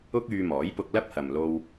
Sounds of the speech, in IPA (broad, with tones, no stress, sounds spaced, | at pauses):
ʊ˥ k̚ yː˧ m ɔː˨˥ j p ʊ˧ k̚ l ɐ˥ p̚ h ɐ˨ m l o˧ w